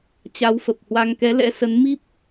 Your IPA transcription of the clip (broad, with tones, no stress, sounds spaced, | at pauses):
t͡ɕ a˨˦ w f ə˨˩ p̚ h w a˧ ŋ k ɛ˨˦ l ɛ̰˧˥ s ə˨˦ n m i˦˥ p̚